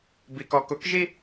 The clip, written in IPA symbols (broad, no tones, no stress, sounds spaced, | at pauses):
b i k ɔ k ʊ k ʒ i